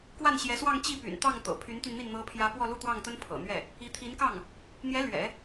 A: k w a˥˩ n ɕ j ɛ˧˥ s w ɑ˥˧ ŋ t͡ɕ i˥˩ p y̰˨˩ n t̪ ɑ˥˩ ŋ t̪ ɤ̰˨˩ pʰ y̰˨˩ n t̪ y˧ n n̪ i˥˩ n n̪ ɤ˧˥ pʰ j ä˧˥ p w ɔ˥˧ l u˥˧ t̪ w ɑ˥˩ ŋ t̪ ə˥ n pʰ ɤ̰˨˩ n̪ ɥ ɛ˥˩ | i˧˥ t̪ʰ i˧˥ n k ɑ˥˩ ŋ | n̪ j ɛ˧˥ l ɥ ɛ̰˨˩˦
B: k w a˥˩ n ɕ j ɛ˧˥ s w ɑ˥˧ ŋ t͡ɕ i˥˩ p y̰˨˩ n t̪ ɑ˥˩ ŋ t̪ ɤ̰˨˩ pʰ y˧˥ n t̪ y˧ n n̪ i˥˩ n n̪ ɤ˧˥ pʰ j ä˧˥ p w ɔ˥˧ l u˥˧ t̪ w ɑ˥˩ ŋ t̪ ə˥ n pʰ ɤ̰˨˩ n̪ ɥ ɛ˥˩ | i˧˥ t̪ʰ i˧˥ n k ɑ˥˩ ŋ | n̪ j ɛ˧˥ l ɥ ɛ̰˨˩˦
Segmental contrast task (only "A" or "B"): B